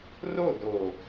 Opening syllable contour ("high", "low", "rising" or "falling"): falling